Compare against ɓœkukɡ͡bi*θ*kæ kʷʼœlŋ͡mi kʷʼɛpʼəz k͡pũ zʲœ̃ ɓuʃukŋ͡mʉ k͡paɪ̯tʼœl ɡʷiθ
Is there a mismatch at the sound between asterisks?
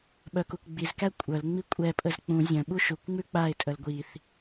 yes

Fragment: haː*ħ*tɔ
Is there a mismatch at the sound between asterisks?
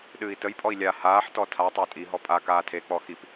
no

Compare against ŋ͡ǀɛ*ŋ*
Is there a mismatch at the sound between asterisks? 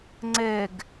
yes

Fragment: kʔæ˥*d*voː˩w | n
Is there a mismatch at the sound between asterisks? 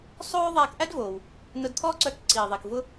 no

